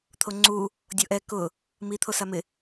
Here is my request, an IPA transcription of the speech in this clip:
t̪ʰ o ŋ͡ǀ u | dʲ o ʔ ɛ k ʊ | m i t̪ʰ o s a m ɪ

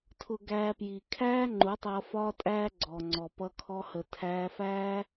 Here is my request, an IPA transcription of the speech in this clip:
tʰ ʊ˧ ɡ æː˧ p j i˨ kʰ æː˦ ŋ͡ǃ u˨˦ tˤ ʌː˧ f ɒː˦ tʼ æː˦ ɡ͡ǀ ɔː˨ ŋ͡ǀ ɔ˨ p ʌ˧ kʰ ɔ˧ h ə˨ tʰ æː˧ f æː˦

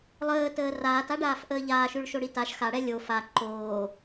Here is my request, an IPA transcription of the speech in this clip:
lˠ əː t əː r aː t a ɖ aː f ʔ əː ʎ aː ʃ ʉ ɭ ʃ o ɽ i t a ʃ x a ɽ ɛ lʲ o f a ǃ oː

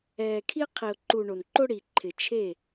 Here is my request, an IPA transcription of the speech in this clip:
ɛː˨ kʰ i˦ qʰ i˨ ʊ̯ ǃ u˨ ɳ o˨ n ǃ o˦ ɽ i˨ ǃʰ ɪ˨ t͡ʃʰ e˦˨

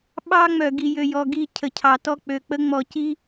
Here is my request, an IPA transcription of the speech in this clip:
ɓ ɑ˦ ŋ͡m œ˨ ɡ i˨ j ø˨ j ɔ˨ ɡ i˦˨ cʰ ə˨ cʰ ɑ˨ t ɔ˦ k͡p ø˨ k͡p ə˦ ŋ͡m ɔ˨ c i˦

